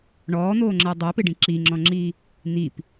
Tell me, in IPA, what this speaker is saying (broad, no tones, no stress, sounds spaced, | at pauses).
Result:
ɳ ɔː n̪ oː ŋ͡ǁ ɜ dˤ ɜ p ɪ ɖ ĩ ǁ i ŋ͡ǁ ɔ̃ ŋ͡ǁ iː | n̪ i p